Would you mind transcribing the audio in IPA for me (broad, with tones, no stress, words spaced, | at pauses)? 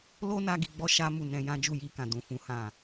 lo˧ na˦ɡi˧ɡ͡bɔ˦ ʃa˦mu˦˨ nɛ̃˧jã˦ d͡ʒu˦˨ji˧kã˨ dũ˨fũ˨˦ hã˦˨